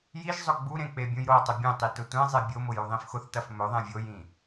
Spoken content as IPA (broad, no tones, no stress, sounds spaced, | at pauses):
j i ʒ zˤ ʊ ɡ͡b u ɾ ẽ k͡p e bʲ ũ j ɾ o tˤ ʊ bʲ ẽ tˤ i t ʊ tʷ ẽ zˤ e bʲ o m ʊ j u ðˤ ĩ f x ʊ θ t ɐ f m ɵ ðˤ ẽ vʲ o j ĩ